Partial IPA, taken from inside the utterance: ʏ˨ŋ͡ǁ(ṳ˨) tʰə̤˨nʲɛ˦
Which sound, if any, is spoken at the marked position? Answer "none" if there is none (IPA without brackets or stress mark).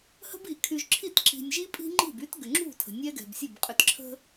ṳ˦˨